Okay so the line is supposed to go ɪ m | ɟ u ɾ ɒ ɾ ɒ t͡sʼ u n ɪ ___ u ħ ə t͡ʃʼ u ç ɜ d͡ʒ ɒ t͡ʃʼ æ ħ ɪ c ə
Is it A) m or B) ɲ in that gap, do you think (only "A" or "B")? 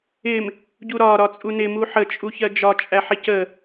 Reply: A